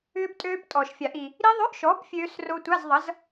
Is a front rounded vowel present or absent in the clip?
present